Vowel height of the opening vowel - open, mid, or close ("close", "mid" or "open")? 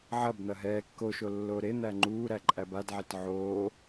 open